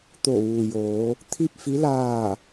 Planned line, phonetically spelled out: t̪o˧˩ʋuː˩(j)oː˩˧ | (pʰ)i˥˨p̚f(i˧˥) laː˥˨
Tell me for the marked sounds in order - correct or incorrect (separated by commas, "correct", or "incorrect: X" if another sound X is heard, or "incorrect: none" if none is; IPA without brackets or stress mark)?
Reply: correct, incorrect: t̪ʰ, correct